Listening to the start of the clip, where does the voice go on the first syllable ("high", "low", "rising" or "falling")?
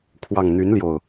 low